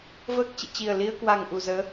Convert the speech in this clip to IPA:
v əː˦˥ k̚ t͡ɕ ḭ˧˨ t͡ɕ i˨˩ ə̯ l i˧ ə̯ k w a˨˩ ŋ ʔ u˨˩ z əː˨˦

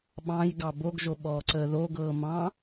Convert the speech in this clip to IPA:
ɓ ɑ̃ j ɡ ɑ b o ɡ ʒ o ɓ ɔː ǀ əː ð o ɡ ɤː m ɑ̃

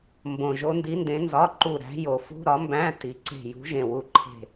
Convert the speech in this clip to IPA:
m b õ˨˩ ʒ o˧˥ n d i˧˥ n d ẽ˧˥ n z ɒ˧˥˧ ǃ u˦˨ ɾ æ̤˧˥ j o˨˩ f ṳ˧˥˧ ɾ ɒ˧˥ m b æ̃˧˥˧ t i˨˩ ǀ e̤˦˨ j ṳ˧˥ ʒ ẽ˦˨ w u˦˨ ǃʰ e̤˦˨

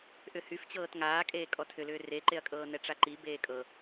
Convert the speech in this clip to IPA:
ʔ ʏ h y f t͡ɕ ɤː t ŋ aː kʼ eː kʼ ɔ tʰ ʏ l ʏː r e ǃ e ɐ̯ kʼ ɤː n ɛ ʈ͡ʂ a ǃ i b eː kʼ ɤ

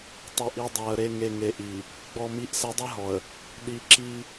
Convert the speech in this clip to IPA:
tˤ ɘ˨ ʔ i˨ dˤ a˨ ə̯ ɾ e˨ ŋ e˨ ŋ e˨ ʔ i˨ | ɡ͡b ɔ˨ m i˨˦ ʔ s ɛ˨˦ dˤ ɛ˦ ɦ ɔ˨ ə̯ | ɗ i˨ ǁ i˦

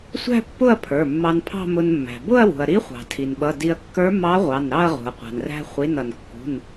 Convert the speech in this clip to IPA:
sʷ æ̤˥˧ pː ʊ˥˧ ɐ̯ pʰ ə˞˩˧˩ mː ɑ˧ n pʰ ɑ̤˥˧ m ʊ˧ n mː æ̤˩ b ʊ˥˧ ɐ̯ w ṳ˩ ɐ̯ ɾ i˧˥ χʷ ɑ̤˩ tʰ i˩ n ɓ ʌ˩˧˩ d i˧ ɐ̯ kː ə˞˧˥ m ɑ˧˥ ʁʷ ɑ˩˧˩ n ɾ ɑ˥˧ ɐ̯ ʁ ṳ˩ ɐ̯ qʷ ɑ̤˩ n r æ̤˧ χʷ i˩˧˩ n ʌ˩ n kː ṳ˩˧˩ n

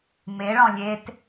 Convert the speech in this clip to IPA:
m e ɭ ɔ̃ lʲ e t

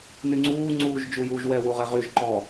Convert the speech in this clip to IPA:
n y ŋ͡ǀ uː ŋ͡ǀ uː ʒ d͡ʒ u j uː ʒ w ɛ w u ʁ ɛ ʁ y ʒ ǃ ɔ

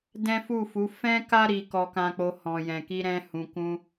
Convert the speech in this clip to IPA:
d ɛ̃˦ f u˦˨ f u˨˦ f ɛ̃˦ k a˦ ɾ i˧ k ɔ˧ k ã˧ k͡p o˧ h ɔ̃˨ j ɛ̃˨ k i˧ ɾ ɛ̃˦ h ũ˧ k ũ˦

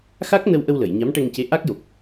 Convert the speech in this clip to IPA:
x a˦˥ k̚ n ə˧ w ʔ ə˧ w l ə˨˩˨ j ɲ a˧˥ m ʈ ɛ˧ ŋ c e˧˥ ʔ a˦˥ k̚ j o˨˩ k̚

